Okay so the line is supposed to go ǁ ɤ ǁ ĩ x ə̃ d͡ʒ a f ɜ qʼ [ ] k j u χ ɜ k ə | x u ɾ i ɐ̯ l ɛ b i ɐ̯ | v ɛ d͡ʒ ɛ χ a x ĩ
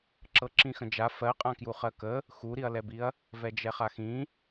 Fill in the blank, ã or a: ã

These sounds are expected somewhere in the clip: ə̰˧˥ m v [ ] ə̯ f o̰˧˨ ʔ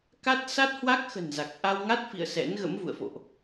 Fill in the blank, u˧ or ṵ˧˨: ṵ˧˨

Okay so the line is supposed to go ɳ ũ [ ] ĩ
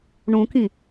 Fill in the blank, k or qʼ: k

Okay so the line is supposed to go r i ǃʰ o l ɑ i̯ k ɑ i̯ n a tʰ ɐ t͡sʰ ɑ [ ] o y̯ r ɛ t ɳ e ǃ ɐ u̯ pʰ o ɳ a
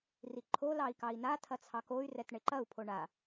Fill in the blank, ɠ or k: k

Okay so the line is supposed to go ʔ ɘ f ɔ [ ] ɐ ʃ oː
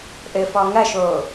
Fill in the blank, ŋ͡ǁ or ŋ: ŋ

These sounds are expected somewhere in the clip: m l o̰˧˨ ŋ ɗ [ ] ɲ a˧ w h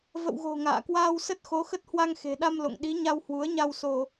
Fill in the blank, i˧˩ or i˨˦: i˨˦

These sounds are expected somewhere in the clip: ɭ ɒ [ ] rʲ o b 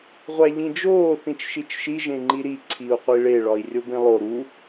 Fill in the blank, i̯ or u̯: i̯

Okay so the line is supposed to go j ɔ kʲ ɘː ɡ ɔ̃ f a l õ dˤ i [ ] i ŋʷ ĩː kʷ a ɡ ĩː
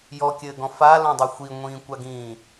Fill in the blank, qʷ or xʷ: xʷ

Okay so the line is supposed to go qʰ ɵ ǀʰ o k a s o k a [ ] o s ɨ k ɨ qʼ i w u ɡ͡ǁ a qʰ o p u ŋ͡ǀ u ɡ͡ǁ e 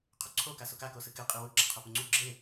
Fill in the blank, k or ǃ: k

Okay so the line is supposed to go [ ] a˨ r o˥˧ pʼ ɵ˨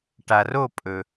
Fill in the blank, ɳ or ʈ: ʈ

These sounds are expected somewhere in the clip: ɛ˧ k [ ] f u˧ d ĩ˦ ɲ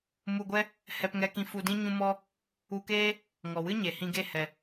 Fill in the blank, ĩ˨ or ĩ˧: ĩ˧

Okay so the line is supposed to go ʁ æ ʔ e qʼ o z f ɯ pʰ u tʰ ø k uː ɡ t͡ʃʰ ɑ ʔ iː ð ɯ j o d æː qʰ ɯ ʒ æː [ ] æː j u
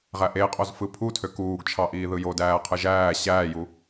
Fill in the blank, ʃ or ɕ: ɕ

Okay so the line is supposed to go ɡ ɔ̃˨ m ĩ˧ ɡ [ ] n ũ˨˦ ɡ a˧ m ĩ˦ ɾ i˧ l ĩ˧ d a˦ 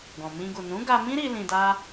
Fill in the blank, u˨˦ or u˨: u˨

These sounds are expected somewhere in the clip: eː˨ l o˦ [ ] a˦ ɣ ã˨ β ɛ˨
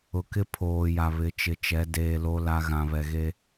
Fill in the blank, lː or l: l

